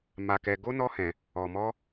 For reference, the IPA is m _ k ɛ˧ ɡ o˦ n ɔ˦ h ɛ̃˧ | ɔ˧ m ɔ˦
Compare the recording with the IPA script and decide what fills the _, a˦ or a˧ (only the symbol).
a˧